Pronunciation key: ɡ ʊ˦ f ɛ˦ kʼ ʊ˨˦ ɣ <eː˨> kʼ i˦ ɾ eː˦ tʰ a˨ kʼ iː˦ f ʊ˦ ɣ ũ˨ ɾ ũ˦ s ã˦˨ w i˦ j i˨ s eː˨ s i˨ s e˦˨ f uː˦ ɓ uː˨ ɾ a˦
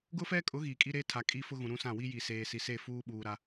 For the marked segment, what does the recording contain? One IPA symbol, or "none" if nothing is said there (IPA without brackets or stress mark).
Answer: iː˨